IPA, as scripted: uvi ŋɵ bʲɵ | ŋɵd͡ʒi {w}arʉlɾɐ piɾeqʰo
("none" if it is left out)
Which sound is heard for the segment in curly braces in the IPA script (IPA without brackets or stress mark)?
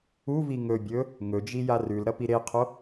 j